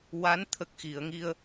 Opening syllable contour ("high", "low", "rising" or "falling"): rising